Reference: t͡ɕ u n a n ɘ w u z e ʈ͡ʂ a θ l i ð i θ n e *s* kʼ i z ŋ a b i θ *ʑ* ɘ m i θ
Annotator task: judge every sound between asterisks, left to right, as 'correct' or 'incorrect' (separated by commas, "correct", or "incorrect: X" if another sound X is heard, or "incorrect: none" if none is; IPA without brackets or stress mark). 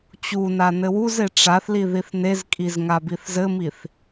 incorrect: z, incorrect: z